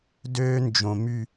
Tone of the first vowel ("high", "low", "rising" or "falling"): high